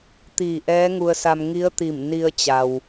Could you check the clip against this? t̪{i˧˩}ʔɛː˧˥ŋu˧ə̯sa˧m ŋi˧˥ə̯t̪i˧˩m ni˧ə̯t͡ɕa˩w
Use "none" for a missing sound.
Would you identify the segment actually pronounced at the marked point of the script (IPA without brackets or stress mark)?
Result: iː˧˩